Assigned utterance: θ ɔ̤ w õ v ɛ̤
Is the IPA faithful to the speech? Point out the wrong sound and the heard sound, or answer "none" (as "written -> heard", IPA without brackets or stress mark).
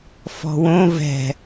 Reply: θ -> f